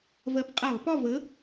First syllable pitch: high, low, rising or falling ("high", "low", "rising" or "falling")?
rising